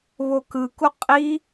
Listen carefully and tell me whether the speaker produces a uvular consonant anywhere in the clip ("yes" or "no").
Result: yes